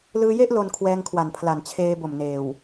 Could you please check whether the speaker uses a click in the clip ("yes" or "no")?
no